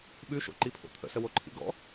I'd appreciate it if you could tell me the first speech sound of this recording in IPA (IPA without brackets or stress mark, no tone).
ɓ